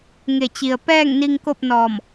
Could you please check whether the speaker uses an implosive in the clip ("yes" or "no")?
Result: no